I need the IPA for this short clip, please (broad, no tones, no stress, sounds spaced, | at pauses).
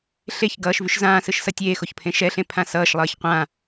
ɬ e ç ɡ ʌː ʃ v y ʃ z ãː s ɯ ʃ s ʌ tʲ eː x o ç pʰ ẽ ʃ ɛ ɬ ẽ pʰ ã s ʌː ʃ lˠ ʌː ç qʷ ã